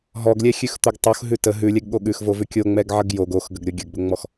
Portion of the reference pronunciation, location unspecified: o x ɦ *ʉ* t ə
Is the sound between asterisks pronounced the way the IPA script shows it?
yes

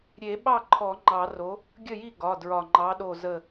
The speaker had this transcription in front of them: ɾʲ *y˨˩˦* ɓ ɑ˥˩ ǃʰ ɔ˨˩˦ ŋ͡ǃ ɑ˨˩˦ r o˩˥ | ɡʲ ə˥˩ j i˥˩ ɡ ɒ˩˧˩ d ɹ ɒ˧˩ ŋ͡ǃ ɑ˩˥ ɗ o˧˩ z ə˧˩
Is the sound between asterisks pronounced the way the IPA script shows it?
no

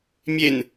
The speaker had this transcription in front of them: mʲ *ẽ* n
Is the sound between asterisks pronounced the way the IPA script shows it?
no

